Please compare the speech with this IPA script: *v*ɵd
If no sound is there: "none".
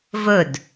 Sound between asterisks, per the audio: v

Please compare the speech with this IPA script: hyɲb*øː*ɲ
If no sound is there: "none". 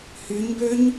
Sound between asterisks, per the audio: ø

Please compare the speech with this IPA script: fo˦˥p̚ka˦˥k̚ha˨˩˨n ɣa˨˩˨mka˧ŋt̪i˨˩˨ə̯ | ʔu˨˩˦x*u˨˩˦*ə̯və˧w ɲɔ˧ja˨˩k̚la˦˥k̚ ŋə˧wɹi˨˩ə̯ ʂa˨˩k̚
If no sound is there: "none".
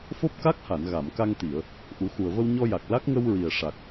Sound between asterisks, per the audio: u˨˩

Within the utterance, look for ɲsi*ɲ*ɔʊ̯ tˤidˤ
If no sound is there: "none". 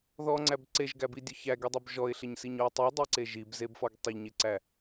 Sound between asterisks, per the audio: ɲ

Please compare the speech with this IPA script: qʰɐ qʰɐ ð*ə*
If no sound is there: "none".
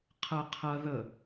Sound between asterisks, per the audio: ə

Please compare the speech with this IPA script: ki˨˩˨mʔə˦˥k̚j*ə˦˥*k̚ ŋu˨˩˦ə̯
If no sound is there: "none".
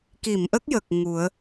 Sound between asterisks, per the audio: ə˨˩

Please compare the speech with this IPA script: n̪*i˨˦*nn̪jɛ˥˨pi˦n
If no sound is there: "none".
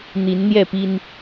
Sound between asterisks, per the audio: i˨˦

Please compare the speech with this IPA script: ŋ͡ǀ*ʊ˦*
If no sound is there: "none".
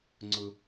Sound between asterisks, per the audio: ʊ˨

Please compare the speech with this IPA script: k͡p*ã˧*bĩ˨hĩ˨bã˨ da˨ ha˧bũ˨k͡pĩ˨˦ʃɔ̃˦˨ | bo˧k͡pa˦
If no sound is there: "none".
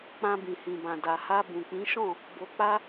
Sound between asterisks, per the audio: ã˧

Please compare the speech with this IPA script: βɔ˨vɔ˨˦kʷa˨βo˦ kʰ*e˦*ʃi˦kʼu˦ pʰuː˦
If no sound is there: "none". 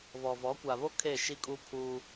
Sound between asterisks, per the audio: e˦˨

